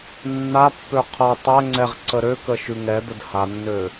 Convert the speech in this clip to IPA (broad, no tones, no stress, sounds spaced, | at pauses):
nː a pː ø qʰ ʌ tˤ ɛ ŋ͡ǀ ɛ ʁ ǀ ə ɾ ø k ə ʃ ʉ ŋ ɛ d̪ ə d h a nː ø